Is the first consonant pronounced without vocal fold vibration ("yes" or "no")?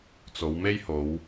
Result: yes